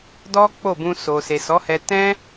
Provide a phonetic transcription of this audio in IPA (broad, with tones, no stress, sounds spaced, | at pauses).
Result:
d ɔ˦ k͡p o˦˨ b ũ˧ s o˨ s e˨ s ɔ˨˦ h ɛ˧ t ɛ̃˦